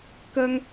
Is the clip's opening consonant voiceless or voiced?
voiceless